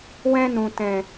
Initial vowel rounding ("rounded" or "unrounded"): unrounded